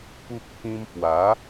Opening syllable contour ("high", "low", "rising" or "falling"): high